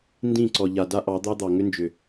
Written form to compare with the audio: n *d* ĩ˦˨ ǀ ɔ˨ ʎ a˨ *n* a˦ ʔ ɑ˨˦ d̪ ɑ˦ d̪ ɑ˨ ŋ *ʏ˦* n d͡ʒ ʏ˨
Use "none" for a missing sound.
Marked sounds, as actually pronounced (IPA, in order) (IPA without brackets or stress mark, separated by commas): d, d, ʏ˦